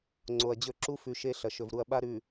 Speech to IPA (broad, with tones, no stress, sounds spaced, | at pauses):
ŋ͡ǀ o˨ ɐ̯ d͡ʑ ɵ˦ ǁ u˦ f ʉ˨ ʃ e˦ ɬ ɐ˨ ʃ ɵ˨ v ɾ u˨ ɐ̯ ɓ a˦ ɾ ʉ˨